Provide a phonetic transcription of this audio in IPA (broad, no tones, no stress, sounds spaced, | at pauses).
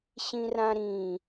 ɕ ĩ r ã ɾ ĩ